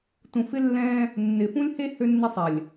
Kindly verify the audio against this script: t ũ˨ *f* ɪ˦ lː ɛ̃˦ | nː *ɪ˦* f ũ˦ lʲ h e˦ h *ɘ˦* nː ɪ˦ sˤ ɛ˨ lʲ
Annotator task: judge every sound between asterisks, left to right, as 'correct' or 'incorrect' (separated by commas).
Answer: correct, incorrect, incorrect